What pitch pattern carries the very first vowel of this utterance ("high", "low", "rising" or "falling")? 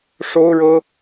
high